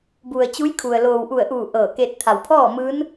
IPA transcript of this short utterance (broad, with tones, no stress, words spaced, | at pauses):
bu˩ə̯t͡ɕu˧˥jkʰu˩ə̯ loː˩wʔu˧˩ə̯ʔuː˧˩ ʔɤː˧˩ke˧t̚ t̪ʰa˩wpʰɔː˥˨ mɯː˧˥n